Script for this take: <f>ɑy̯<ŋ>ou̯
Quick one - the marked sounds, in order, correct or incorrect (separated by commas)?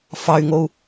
correct, correct